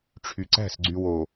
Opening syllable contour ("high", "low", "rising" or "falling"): low